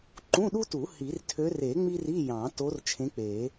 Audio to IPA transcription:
ǃũ˧˥˧ɗu˥tu˨˩˦ hi˨˩˦rtʰø˧˥r e˨˩˦ ŋ͡mi˥ri˧˥˧ jɑ̃˨˩˦to˧˥r t͡ʃʰẽ˧˥k͡pe˨˩˦

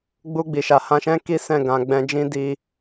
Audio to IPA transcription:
ɡ͡bu˧ ɡ͡bi˨ʃa˨ hã˧ʃɛ̃˦ki˦ sɛ̃˦˨ɡã˨ɡ͡bɛ̃˧d͡ʒĩ˦ di˧

